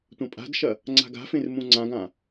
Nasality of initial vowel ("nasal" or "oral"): nasal